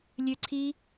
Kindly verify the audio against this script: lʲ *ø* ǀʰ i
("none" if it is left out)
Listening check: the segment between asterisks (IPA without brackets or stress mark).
ø